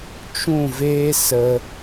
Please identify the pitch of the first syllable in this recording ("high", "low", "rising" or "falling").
falling